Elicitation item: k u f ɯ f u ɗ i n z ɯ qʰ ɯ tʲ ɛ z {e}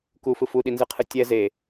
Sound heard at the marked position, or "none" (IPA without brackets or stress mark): e